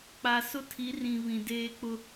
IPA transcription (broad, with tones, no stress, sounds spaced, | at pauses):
k͡p a˨ s ʊ˦ tʰ i˨˦ r ĩ˨ β ĩ˨ d eː˦ k͡p ʊ˦